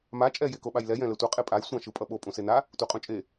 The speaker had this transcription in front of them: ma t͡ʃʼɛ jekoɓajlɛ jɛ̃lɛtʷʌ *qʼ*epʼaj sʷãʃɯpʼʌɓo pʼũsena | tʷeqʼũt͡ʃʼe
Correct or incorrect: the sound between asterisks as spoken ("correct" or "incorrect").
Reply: correct